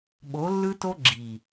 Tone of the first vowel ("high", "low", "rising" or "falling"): rising